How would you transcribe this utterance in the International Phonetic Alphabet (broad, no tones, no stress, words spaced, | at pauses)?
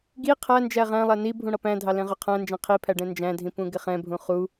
ɡi qʰænd͡ʒæ ʁæ̃lˠæ ni bʱũɽʌpæ̃dʱɑ lɛ̃ʁʊqʰæ̃nd͡ʒɛ̃ qʰipʰæ ɖɛ̃nd͡ʒæ̃dʱĩ pũɡɪχɛ̃bʱũ χu